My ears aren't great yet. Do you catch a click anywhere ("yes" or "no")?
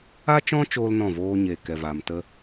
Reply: no